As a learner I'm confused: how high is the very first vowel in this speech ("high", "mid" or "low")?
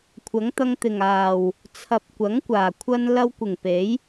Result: low